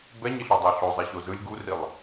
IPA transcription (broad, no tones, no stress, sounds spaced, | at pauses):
b ɛ ɲ i ɬ u dˤ a ɬ o zˤ ɛ ɕ o z ɯ lʲ ɡ u r i lˠ